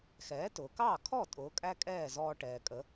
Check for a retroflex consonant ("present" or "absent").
present